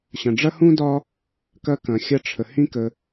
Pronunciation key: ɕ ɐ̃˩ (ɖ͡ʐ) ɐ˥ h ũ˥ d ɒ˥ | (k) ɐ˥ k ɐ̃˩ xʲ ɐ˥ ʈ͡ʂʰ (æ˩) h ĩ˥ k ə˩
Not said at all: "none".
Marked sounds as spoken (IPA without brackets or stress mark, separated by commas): ɖ͡ʐ, k, ə˩